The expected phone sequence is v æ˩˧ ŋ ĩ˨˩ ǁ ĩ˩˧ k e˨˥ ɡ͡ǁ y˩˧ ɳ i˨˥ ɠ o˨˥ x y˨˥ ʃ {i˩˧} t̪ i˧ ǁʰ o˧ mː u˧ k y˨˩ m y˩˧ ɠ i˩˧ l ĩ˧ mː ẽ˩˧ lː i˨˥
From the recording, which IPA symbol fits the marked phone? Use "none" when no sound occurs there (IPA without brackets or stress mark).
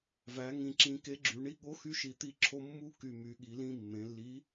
i˨˩